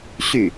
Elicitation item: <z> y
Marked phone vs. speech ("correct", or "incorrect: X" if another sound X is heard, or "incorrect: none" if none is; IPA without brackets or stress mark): incorrect: ɕ